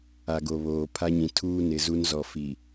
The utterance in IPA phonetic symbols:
a˨ ɡ o˨ β oː˨ pʰ a˦ ɲ ĩ˨ tʰ uː˦ n ɪ˨ z u˦ n z ɔ˨ f i˨

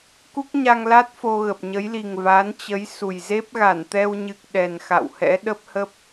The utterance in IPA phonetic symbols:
k u˦˥ k̚ ɲ a˧ ŋ l a˦˥ t̚ f o˧ ɣ ə˨˩ p̚ ɲ ə˨˦ j l i˨˩ ŋ v a˨˦ n t͡ɕ ə˨˦ j s u˨˩ j z e˦˥ p̚ ɣ a˧˩ n t̪ ɛ˧ w ɲ ɨ˨˩ k̚ ɗ ɛ˨˩ n x a̰˧˨ w h ɛ̰˧˥ ɗ ə˦˥ p̚ h ə˦˥ p̚

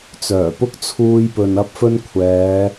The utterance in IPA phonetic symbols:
t͡s œː˨˩ p ʊ˥ k̚ t͡sʰ uː˧ j p ɵ˨ n ɐ˥ p̚ f ɵ˥ n kʷʰ ɛː˨˧

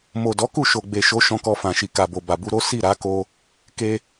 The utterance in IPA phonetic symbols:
m o˨ d ɔ˨˦ k u˦˨ ʃ o˨ ɡ͡b e˨ ʃ o˨˦ ʃ ɔ̃˧ k ɔ˧ f ã˨ ʃ i˨ k a˨ b o˨ b a˨ b u˧ ɾ o˦ s i˦˨ ɾ a˨˦ k o˧ | k e˧

